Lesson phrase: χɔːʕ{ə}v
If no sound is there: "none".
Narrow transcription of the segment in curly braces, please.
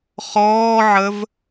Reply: ə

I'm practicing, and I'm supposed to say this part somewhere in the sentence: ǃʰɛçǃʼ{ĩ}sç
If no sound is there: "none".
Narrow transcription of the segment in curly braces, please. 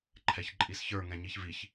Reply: i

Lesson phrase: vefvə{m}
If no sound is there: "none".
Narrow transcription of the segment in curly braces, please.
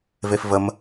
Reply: m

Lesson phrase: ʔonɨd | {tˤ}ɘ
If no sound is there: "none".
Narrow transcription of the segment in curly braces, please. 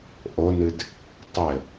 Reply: tˤ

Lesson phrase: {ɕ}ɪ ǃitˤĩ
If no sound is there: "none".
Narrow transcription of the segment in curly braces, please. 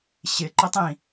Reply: ɕ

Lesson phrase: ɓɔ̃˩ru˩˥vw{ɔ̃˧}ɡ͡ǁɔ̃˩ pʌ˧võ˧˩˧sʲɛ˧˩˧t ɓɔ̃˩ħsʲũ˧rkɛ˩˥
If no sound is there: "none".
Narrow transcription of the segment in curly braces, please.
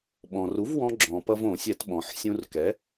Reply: ɔ̃˧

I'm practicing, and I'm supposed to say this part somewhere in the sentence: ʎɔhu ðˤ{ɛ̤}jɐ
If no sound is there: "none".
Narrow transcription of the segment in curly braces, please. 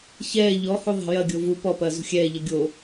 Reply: ɛ̤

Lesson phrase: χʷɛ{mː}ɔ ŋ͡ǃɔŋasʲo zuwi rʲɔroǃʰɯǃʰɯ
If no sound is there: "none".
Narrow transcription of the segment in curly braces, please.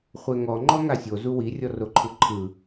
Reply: ŋ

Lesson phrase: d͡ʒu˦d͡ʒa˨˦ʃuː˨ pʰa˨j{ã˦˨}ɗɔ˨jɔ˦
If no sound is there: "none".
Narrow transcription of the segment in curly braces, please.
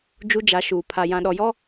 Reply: ã˨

